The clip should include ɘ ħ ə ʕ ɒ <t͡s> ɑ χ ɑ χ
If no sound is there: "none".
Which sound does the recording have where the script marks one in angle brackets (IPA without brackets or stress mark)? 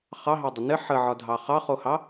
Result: dʱ